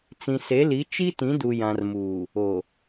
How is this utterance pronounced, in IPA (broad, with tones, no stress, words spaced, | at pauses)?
t͡sĩ˨se˨˦li˨˦ t͡ʃi˦tĩ˨˦ du˨jã˨rmuː˨ | o˨